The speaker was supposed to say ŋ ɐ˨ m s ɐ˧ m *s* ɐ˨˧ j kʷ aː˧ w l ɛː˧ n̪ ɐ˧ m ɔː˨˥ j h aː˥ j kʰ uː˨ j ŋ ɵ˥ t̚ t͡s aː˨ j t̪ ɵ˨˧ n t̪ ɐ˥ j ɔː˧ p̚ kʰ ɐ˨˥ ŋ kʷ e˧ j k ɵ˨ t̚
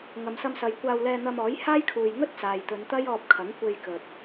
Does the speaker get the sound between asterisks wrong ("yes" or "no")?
no